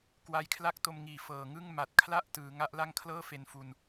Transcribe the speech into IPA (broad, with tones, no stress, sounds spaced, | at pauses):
k w a˧ j kʰ l a˥˩ k̚ t o˧ m ŋ iː˨˩ f ɤː˨˩ ŋ ɯ˥˩ ŋ m a˨˩ t̚ kʰ l a˥˩ ʔ t ɯː˩˦ ŋ a˦˥ ʔ l a˥˩ ŋ kʰ l ɤː˥˩ f e˧ n f u˧ n